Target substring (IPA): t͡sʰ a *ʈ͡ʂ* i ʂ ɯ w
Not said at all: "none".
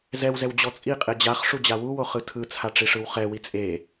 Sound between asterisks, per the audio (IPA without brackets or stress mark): ʈ͡ʂ